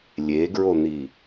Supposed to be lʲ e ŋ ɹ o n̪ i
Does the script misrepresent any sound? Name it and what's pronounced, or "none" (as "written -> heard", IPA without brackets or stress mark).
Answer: ŋ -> ɡ